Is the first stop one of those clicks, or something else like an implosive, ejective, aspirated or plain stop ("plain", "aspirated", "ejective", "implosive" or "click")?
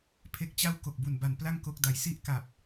aspirated